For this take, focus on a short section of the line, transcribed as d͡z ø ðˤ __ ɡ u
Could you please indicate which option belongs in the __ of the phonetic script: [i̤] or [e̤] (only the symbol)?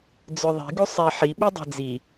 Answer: i̤